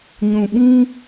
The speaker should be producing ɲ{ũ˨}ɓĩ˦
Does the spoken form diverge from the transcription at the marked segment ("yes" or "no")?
no